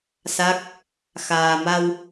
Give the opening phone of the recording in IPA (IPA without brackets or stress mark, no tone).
s